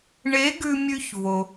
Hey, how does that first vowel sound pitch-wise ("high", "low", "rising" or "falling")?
rising